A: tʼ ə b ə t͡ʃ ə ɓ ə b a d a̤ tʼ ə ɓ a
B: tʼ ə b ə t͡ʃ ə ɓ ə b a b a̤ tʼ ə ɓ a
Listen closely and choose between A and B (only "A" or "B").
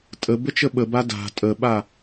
A